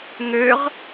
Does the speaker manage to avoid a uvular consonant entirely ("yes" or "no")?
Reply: no